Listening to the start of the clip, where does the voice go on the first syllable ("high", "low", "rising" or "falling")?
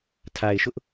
low